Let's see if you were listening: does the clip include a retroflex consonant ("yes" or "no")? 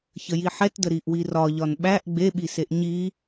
no